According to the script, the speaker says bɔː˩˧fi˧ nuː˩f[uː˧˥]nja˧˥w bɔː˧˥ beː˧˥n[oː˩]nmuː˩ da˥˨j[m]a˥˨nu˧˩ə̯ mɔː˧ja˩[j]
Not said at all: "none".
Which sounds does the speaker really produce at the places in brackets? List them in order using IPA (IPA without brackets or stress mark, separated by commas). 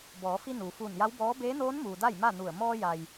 uː˧˩, oː˧˥, m, j